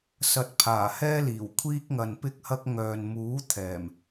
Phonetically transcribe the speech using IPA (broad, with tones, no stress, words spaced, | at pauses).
sɐ˨t̚pʰaː˨˩hɛː˧liː˨˩w kʷʰiː˧k̚ŋɐ˨npɪ˧k̚hɐ˧k̚ ŋœː˨nmuː˨˥t̪ʰɛː˨˩m